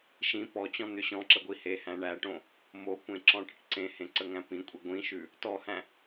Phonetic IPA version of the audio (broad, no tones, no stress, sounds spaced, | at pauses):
ʃ ĩ p ɔ t͡ɕ ɔ̃ n̪ ʏ ɕ ɔ̃ ǁ ə ɡʷ i h e h æ̃ ɳ æ ʈ õ | m o kʷ ẽ ǁ ɔ̃ ʈ ə ʈ ǀ ẽ h ẽ ǀ ə ŋ æ̃ p ĩ kʷʼ i ɡʷ ĩ ʃ ʉ | t ɔ h æ̃